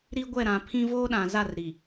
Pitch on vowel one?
high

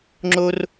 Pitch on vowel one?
high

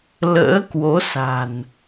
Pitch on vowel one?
rising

